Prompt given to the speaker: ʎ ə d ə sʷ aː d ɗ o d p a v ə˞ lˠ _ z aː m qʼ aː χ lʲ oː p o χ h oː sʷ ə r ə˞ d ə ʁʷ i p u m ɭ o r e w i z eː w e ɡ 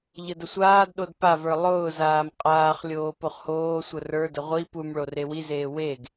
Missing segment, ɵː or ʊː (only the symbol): ʊː